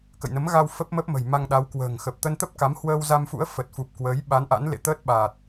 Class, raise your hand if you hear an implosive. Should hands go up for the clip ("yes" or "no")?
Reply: yes